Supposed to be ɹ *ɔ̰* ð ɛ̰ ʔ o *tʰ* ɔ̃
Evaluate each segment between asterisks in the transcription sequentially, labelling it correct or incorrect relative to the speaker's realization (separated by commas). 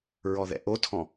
incorrect, correct